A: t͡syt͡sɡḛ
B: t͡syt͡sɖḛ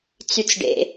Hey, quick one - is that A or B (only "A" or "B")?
B